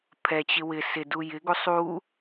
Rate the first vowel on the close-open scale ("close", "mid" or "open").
mid